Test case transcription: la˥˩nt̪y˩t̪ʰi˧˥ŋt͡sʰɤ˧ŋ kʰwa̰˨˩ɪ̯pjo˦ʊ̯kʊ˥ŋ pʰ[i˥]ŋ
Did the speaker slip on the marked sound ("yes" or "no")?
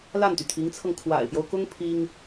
no